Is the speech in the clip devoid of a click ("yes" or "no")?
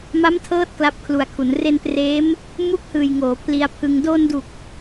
yes